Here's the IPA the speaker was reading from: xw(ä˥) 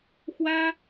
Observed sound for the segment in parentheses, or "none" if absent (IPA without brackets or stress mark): ä˥